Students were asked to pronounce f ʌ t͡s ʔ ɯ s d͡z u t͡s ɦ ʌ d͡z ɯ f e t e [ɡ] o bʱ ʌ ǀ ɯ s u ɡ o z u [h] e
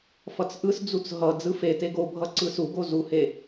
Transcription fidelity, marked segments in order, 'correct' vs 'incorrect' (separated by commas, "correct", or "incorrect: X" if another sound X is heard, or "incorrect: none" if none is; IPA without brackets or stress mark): correct, correct